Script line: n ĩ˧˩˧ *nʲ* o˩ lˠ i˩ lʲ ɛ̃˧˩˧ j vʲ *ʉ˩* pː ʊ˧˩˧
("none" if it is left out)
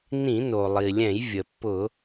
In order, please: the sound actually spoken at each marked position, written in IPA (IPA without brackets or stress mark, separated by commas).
n, ə˩